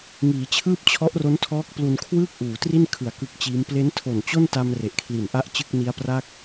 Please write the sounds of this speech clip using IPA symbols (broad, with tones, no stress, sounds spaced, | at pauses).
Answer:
ŋ iː˩˦ t͡ɕʰ ɯː˥˩ p̚ t͡ɕʰ ɔ˦˥ ʔ r o˦˥ n tʰ ɔː˦˥ k̚ p l u˧ n kʰ w ɯː˥˩ k̚ ʔ uː˩˦ t r i˥˩ n kʰ ɯ˩˦ a̯ k ɯ˦˥ k̚ t͡ɕ iː˦˥ m p l e˦˥ n tʰ o˨˩ n t͡ɕ o˥˩ n t a˧ m r e˨˩ ʔ kʰ l i˨˩ n ʔ a˥˩ ʔ t͡ɕ ɯ˥˩ k̚ n i˦˥ a̯ p r a˥˩ k̚